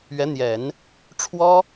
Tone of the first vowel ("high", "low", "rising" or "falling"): rising